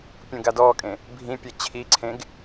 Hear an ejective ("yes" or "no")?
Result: yes